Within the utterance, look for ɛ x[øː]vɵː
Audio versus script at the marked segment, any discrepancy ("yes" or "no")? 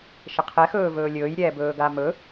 yes